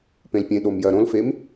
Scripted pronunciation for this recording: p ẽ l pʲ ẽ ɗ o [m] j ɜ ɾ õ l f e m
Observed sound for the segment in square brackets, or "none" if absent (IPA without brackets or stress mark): m